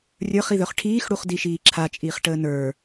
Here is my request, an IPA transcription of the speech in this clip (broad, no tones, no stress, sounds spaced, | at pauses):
rʲ ə˞ χ i ð œ χ ʈʰ iː x ɽ u χ d i ʃ iː ǁʰ a t͡ʃʼ iː χ ʈ əː n ə˞